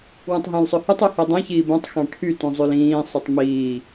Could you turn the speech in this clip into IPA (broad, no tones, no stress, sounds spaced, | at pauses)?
w ũ tˤ ɦ ẽ l sˤ ɵ h u tˤ u h e dˤ ẽ ç iː b õ tˤ x ɑ̃ ʈʰ y t ũ zˤ ʉ l ĩː sˤ y tˤ m iː